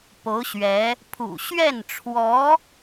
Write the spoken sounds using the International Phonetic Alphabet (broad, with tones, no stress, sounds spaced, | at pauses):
p o˧˥ ʊ̯ ɕ ɥ ɛ˧˥ | pʰ ṵ˨˩ ɕ ɥ ɛ˥˩ n ʈ͡ʂʰ w ɔ˧˥